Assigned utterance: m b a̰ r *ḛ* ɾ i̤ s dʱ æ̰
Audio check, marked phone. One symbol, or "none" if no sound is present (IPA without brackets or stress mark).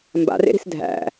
ḛ